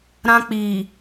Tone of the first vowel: high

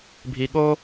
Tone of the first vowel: high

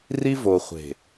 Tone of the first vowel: high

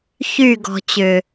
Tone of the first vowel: falling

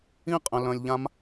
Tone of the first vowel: high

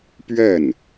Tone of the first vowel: falling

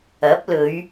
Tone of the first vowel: rising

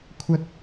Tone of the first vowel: high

